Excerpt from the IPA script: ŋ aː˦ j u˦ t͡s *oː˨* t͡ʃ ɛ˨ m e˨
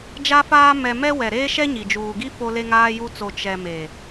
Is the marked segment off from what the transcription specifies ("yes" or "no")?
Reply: yes